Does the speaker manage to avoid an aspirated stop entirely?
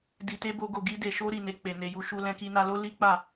yes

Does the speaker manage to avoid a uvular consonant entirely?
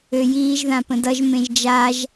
yes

